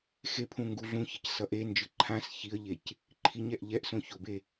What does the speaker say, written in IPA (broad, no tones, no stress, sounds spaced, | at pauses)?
x e pʰ ũ ŋ ɡ u ɮ ũ ç ʌ c s ʌ ʔ e n d͡ʒ ɯ ǃʰ ã s ç i ə̯ ʎ e c | ǃʰ i ɲ ɛ ʔ ʎ ɛ ʔ s õ ç o b e